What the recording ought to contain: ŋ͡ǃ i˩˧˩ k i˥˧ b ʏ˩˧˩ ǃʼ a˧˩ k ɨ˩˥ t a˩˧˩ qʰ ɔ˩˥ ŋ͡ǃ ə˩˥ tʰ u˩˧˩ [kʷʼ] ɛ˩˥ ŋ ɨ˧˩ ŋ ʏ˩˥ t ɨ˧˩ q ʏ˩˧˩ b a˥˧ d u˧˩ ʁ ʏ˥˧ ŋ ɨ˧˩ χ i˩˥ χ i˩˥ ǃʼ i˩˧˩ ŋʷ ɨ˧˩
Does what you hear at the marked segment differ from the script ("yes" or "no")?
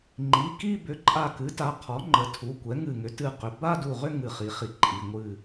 yes